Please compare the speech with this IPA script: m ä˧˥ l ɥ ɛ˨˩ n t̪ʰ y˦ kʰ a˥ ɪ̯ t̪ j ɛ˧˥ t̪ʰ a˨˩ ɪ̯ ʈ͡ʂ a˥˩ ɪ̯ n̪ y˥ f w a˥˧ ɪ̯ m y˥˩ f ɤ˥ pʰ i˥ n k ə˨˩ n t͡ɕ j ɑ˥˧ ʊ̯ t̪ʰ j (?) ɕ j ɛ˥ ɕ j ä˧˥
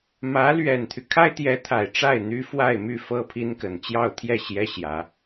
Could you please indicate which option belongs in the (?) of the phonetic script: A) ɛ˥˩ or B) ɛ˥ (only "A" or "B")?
A